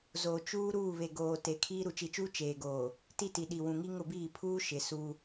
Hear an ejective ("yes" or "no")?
no